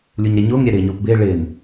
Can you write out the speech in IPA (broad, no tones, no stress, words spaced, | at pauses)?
lʲuɲɾeɲʊːŋ ɾʲɛɾɪːɲʊːpbɪː ɭɪn